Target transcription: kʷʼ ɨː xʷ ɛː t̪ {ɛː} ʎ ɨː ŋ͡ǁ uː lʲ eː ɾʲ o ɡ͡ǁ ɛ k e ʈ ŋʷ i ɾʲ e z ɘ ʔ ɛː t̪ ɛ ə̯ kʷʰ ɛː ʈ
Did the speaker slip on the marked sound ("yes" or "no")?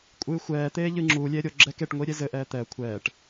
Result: yes